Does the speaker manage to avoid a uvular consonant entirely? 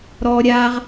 no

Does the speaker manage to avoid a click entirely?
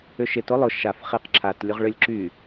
no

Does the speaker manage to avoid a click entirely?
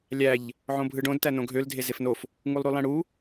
yes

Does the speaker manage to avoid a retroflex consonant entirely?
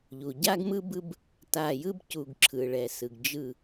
no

